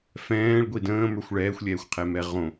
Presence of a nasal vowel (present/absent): present